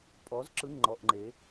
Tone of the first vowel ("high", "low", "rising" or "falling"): rising